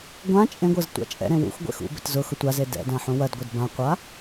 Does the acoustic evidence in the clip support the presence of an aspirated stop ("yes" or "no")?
no